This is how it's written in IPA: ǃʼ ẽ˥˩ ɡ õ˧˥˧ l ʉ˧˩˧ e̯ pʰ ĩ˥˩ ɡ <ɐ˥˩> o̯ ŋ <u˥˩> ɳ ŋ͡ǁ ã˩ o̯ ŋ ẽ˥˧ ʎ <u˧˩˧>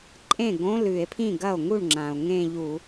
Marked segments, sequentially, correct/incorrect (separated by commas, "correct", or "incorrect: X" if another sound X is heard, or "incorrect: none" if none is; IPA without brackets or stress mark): correct, correct, correct